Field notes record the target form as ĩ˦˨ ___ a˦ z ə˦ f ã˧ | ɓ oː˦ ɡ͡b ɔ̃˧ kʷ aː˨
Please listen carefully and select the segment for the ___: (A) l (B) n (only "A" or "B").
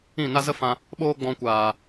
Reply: B